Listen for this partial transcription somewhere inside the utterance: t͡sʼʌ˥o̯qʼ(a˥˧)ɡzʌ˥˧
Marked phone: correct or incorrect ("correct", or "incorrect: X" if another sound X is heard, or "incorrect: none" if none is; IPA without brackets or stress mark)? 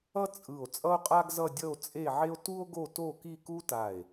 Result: incorrect: a˥